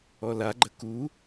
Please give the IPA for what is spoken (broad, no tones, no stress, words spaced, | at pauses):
ɔla ɡ͡ǃəku